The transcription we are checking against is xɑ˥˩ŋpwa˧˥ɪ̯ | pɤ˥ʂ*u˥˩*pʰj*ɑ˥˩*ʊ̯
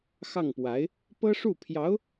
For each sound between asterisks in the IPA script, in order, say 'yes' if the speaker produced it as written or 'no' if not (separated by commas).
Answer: yes, no